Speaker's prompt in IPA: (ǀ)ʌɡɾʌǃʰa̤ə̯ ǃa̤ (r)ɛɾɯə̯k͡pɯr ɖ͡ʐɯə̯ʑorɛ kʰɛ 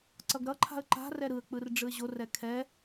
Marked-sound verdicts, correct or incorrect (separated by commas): correct, correct